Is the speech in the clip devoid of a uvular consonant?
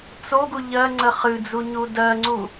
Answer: no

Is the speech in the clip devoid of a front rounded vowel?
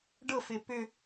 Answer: no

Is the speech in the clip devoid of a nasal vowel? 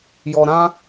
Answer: no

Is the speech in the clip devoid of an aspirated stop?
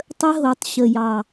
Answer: yes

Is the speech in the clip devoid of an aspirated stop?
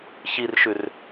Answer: yes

